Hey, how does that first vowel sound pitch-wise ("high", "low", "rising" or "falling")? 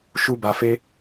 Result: high